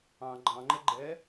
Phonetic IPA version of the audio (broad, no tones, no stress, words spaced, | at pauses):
ɑ̃ ɡ͡ǃɑ̃ŋ͡ǃə ɡ͡ǃɛ